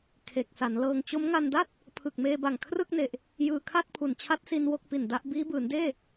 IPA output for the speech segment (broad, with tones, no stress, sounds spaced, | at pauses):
kʰ e˨˩ k̚ s a˩˦ n l ɤː˧ ŋ t͡ɕ o˦˥ m ŋ a˧ n d a˥˩ t̚ | pʰ ɯ˨˩ k̚ m eː˧ b a˨˩ ŋ kʰ r ɯ˥˩ k̚ n e˨˩ ʔ | j ɯː˧ kʰ a˥˩ t̚ pʰ u˨˩ n t͡ɕʰ a˦˥ t̚ s i˧ n w o˥˩ k̚ p i˨˩ n d a˦˥ ʔ b iː˦˥ b ɯː˩˦ n d eː˥˩